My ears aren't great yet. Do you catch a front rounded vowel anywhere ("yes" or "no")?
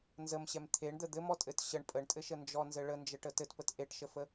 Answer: no